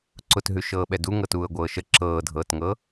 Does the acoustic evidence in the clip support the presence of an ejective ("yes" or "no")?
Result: no